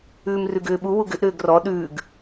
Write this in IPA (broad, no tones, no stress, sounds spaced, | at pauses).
ʉː m r ʉ ɡ ʏː ɓ u w u ɡ ʏ ʔ ɾ ʏː ɡ r ɔ ɗ ʉː ɡ